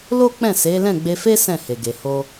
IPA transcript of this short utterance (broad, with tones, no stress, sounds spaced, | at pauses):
l o˦ k͡p ɛ̃˦˨ s e˨˦ l ɛ̃˦˨ ɡ͡b e˧ f e˦ s ɛ̃˦˨ h e˨ ɡ e˨ h o˧